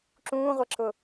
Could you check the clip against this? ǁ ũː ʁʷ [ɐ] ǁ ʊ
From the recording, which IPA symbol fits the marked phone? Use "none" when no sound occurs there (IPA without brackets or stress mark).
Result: ɐ